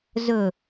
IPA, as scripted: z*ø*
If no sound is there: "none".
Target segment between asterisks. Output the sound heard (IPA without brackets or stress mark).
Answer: ɵ